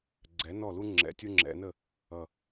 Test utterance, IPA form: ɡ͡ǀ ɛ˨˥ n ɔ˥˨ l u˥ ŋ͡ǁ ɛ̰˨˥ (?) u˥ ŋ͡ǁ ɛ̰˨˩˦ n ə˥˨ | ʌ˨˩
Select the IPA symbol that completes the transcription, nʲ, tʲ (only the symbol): tʲ